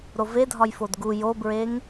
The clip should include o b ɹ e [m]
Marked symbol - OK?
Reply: no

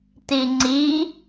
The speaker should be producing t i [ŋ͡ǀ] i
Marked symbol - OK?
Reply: yes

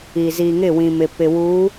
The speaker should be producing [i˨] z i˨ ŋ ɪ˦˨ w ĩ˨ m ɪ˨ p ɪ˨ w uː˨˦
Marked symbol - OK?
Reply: yes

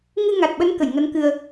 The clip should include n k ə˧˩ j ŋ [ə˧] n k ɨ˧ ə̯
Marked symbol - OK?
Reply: no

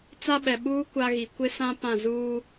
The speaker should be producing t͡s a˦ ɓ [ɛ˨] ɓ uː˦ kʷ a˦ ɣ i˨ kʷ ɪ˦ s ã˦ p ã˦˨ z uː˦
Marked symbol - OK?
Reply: yes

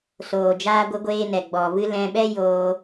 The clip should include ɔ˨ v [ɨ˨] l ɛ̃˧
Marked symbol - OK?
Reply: no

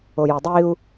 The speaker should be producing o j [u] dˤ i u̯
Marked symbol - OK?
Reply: yes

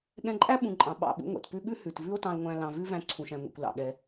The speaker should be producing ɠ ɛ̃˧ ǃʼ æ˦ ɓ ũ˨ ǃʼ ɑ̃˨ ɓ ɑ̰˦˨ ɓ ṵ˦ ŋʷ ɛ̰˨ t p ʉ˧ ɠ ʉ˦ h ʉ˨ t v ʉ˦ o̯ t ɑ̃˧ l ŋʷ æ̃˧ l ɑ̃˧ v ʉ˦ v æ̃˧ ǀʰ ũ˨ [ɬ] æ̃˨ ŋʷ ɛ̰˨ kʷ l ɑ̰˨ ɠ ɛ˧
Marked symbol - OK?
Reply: no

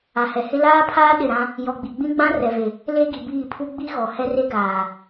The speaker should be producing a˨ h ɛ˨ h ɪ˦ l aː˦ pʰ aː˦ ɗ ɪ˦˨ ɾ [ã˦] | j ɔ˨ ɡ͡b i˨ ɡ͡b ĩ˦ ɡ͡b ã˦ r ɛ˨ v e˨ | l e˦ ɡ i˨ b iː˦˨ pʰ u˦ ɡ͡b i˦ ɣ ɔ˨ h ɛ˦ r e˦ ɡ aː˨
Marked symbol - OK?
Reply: yes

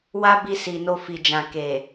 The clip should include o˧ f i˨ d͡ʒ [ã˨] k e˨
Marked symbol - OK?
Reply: yes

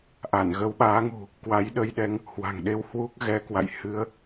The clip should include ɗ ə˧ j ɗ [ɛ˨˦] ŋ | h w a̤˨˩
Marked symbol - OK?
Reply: yes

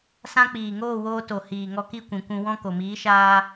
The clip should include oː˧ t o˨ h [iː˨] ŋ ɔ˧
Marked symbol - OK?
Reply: yes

